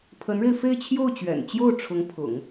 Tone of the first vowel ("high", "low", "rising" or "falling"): rising